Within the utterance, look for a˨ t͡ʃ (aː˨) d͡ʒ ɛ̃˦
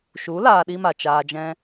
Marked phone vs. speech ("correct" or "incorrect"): incorrect